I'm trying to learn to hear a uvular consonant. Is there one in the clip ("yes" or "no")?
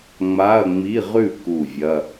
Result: yes